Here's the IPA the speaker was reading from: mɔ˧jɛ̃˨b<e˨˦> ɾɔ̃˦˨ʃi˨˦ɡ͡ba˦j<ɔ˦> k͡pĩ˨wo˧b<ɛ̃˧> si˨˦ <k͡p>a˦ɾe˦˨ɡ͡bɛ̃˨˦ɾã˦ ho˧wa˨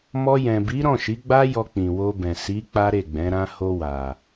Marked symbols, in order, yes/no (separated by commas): no, no, no, yes